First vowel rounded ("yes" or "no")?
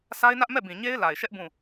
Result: no